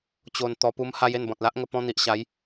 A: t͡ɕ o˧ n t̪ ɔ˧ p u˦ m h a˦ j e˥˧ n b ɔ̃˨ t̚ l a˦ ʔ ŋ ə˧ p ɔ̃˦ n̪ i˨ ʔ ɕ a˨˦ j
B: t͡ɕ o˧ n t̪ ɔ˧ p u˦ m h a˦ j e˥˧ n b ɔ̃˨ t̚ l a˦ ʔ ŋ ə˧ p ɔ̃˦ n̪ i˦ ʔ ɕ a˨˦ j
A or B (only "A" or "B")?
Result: A